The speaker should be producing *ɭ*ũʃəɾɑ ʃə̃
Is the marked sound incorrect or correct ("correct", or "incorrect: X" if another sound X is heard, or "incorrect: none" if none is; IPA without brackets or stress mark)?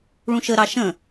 correct